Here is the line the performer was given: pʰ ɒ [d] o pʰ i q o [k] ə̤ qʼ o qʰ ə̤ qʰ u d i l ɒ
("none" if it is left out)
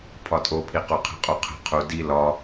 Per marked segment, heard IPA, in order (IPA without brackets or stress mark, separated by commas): tʼ, qʰ